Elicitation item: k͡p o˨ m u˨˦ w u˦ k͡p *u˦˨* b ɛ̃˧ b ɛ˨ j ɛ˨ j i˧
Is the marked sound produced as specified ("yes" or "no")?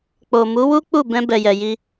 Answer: yes